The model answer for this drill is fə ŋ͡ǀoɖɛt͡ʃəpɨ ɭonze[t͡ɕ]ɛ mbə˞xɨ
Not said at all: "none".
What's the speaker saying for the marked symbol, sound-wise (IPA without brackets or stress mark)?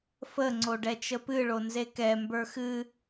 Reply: k